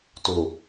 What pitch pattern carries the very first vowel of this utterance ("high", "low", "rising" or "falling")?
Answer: low